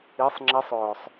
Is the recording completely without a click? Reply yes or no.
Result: no